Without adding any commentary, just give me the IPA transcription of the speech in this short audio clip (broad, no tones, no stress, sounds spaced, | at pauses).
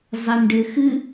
zˤ e n ɖ ɘ x ɨ